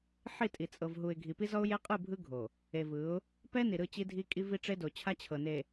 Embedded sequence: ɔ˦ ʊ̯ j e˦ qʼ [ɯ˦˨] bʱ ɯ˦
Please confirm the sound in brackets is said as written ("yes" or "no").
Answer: yes